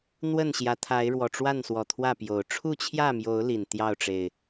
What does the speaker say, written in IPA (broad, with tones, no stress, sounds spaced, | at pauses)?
n̪ w ə˥˨ n ɕ j ä˨˦ t̪ʰ a˨˦ ɪ̯ ɻ w ɔ˨˩ ʈ͡ʂ w a˥˨ n s w ɔ˨˩ t̪ʰ w ä˥˨ p j o˨˩ ʊ̯ ʈ͡ʂʰ u˥˨ t͡ɕʰ j ä˥˨ m j o˨˦ ʊ̯ l i˨˩ n t̪ j ɑ˥˨ ʊ̯ ʈ͡ʂ e˨˩ ɪ̯